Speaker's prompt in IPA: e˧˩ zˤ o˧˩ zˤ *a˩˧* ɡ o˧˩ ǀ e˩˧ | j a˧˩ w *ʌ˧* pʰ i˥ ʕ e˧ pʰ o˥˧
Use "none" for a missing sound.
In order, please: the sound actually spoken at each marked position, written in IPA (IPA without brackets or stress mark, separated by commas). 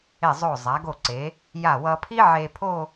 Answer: a˩˧, ʌ˧